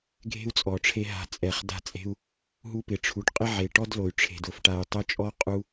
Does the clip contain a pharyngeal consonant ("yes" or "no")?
yes